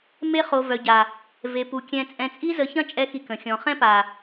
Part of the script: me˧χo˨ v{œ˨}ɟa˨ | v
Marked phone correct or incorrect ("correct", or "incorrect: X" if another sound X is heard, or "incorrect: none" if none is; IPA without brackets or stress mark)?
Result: correct